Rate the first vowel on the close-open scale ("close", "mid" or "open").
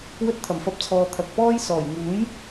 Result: mid